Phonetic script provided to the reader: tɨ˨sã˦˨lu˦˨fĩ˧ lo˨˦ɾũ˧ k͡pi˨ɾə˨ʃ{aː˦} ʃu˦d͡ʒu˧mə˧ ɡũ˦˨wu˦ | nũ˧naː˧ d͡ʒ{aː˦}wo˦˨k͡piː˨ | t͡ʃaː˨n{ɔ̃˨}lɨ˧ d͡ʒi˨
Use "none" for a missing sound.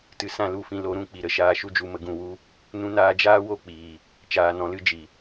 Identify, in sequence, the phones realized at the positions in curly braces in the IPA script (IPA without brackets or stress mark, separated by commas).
aː˧, aː˦, ɔ̃˨